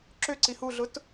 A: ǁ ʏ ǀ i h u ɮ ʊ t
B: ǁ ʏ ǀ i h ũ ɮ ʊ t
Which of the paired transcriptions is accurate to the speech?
A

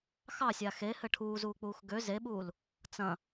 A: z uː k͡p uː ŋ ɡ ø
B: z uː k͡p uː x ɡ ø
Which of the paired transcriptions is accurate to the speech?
B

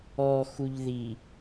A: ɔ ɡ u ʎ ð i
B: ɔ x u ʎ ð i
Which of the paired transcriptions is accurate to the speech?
B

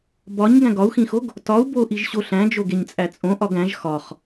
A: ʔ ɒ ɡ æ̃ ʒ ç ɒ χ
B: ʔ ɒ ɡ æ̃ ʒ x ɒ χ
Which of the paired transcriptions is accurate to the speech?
B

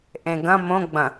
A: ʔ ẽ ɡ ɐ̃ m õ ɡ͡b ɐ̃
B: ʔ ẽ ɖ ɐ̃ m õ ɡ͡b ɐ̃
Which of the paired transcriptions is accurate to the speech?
A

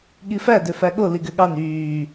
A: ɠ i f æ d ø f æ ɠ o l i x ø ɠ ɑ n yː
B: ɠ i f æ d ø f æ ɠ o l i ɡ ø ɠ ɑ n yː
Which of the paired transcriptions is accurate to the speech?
B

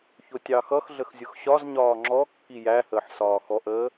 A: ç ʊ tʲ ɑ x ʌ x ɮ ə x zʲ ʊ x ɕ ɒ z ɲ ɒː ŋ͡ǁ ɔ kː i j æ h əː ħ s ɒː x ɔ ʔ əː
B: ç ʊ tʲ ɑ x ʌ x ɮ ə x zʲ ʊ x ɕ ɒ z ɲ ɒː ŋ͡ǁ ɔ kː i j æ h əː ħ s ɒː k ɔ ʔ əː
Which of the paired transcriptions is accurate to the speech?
A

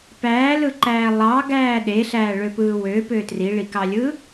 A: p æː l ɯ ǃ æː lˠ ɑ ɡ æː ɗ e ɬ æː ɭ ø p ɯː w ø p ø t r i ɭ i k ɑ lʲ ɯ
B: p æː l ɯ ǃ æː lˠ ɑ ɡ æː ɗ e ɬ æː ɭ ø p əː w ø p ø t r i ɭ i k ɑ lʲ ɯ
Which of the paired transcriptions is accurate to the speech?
A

